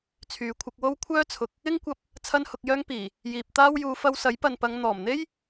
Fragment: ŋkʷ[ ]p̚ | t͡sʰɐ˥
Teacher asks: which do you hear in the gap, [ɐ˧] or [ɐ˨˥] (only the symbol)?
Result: ɐ˧